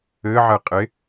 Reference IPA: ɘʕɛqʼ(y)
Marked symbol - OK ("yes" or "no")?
no